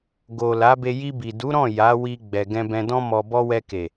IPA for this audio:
ɡ o˨ l a˨˦ b e˧ j i˧ b i˨ d u˨˦ ɾ ɔ̃˦˨ j a˨˦ w i˧ ɡ͡b ɛ˨ ɡ ɛ̃˧ b ɛ̃˧ d ɔ̃˦ m ɔ˧ b ɔ˦ w ɛ˧ k e˨

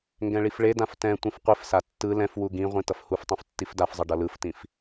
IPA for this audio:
ŋ ɡ ɛ̃ ɭ i f ɭ e d ã f t ɛ̃ tʷ ĩ f qʷ i f s a tː ɯ l ɛ̃ f w u ɡ ĩ ʁʷ ĩ t ʌ f h u f tˤ ũ f tː i f d a f zˤ ʌ ɖ ʌ l ɯ f t ĩ f

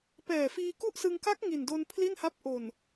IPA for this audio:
p ɛː˨˩ f iː˧ k u˥˩ ʔ s ɯ˧ ŋ k a˦˥ k̚ ŋ i˨˩ n d o˧ n pʰ l i˥˩ n h a˦˥ p̚ ʔ o˨˩ n

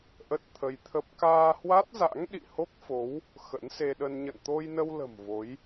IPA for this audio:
ʔ ə˦˥ t̚ t̪ʰ ə˧ j t̪ʰ ə˦˥ p̚ k aː˧ h w a˦˥ t̚ z a̰˧˥ ŋ ɗ ḭ˧˨ h o˦˥ k̚ f o˨˦ w | x ə̰˧˥ n s e˧ ɗ ə˧ n ɲ ə̰˧˨ n t̪ o˧ j n ə˧ w l ə̤˨˩ m v o˨˦ j

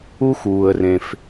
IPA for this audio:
u˦ x uː˨ ə̯ r ẽ˨ f

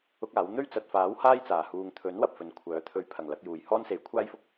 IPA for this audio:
ʊ˥ k̚ aː˨˥ w n̪ ɵ˥ ɥ t͡s ɐ˨ t̚ f aː˨˥ w h aː˥ j t͡s aː˨˩ h uː˨ ŋ t̪ʰ ɵ˨˥ n w ɐ˨ p̚ f ɵ˨˥ n kʷʰ œː˨˥ t̪ʰ ɵ˨˥ ɥ pʰ ɐ˨˩ ŋ l ɐ˧ k̚ j uː˨˩ j h ɔː˥ n s e˨˥ j kʷʰ aː˥ j f ʊ˥ k̚

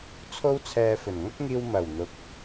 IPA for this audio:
t͡sʰ o˥ w t͡sʰ ɛː˧ f ɵ˨˩ n ŋ ɐ˥ k̚ ŋ iː˧ w m ɐ˨˩ w n̪ ʊ˨˥ k̚

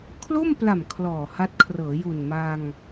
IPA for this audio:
kʰ l o˥˩ m p l a˨˩ m kʰ l ɔː˨˩ h a˦˥ t̚ kʰ r ɤː˩˦ j u˨˩ n m a˧ ŋ

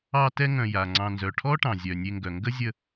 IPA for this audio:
ɑ˦ t ɛ˦ ŋ œ̃˨ j a˩ ŋ͡ǀ ɑ̃˨ n z œ˩ ʈʰ ɔ˥ ʈ ɑ̃˩ zʲ œ˩ nʲ e˨ ŋ ɡ œ˩ ŋ ɡ ə˥ zʲ ə˦

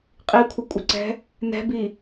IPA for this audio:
qʼ i kʷʰ ə kʷʼ ə ǀ ɛ̤ | n ɛ̤ b i

